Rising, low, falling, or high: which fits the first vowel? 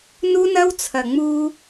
high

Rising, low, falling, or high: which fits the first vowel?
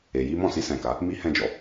low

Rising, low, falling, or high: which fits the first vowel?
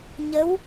rising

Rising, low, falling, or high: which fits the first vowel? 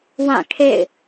falling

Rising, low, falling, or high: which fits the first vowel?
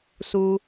low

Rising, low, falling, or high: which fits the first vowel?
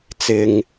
low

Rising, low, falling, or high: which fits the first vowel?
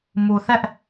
low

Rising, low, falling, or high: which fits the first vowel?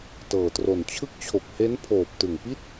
low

